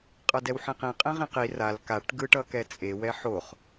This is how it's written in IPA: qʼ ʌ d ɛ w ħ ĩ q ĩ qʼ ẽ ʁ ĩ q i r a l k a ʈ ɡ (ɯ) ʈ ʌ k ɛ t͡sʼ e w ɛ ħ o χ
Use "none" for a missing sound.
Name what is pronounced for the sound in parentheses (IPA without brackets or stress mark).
ɯ